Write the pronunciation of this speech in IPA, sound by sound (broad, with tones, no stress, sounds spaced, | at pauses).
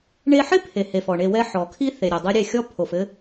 ɳ e˧ ħ ɪ˦ pʰ e˨ h e˨ f ɔ˨ ɳ e˧ w ɛ˦ ħ ɔ˨ kʰ i˦ θ e˨ ɾʲ ɘ˨ dˤ ɘ˦ ɾʲ e˦˨ xʲ ɔ˦ pʰ o˨ f ɘ˦